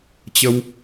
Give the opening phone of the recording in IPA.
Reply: t͡ɕ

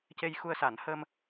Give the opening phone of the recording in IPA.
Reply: c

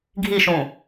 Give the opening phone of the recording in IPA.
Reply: ɡʱ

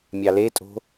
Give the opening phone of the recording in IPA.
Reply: mʲ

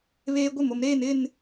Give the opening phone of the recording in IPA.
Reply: β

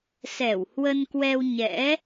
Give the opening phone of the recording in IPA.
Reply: s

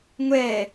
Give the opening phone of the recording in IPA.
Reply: ŋʷ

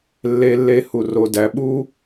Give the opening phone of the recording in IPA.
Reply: lː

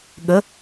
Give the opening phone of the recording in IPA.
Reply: ɠ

